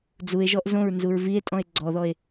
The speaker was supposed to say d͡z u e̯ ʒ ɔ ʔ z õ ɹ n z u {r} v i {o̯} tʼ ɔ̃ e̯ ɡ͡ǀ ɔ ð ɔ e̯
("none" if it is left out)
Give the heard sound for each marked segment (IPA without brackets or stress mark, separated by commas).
ɹ, e̯